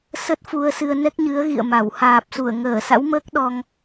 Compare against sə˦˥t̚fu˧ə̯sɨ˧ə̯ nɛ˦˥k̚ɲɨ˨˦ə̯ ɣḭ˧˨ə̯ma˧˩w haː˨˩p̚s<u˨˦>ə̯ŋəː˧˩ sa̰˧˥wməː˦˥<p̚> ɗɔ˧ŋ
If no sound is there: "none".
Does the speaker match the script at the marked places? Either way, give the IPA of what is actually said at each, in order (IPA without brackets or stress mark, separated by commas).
u˧˩, k̚